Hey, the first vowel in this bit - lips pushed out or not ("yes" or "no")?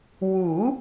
yes